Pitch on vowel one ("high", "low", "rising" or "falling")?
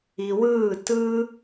low